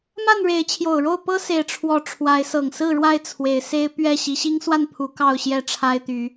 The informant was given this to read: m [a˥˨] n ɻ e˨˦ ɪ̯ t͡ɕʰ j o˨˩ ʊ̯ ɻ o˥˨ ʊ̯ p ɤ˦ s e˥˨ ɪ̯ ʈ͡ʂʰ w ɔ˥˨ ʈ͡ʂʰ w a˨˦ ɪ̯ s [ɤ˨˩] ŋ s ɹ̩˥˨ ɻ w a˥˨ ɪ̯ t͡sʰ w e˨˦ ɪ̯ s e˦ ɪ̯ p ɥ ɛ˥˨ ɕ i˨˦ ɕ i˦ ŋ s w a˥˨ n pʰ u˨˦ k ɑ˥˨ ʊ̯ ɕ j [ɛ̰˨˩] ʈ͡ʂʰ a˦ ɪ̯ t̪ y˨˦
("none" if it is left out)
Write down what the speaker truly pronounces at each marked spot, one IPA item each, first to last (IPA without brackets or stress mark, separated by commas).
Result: a˥˨, ɤ˨˩, ɛ˥˨